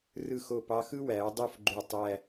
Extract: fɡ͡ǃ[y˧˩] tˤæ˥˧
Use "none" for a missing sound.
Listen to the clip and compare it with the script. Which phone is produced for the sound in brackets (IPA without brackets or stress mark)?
y˧˩